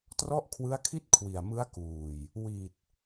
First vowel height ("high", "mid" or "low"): mid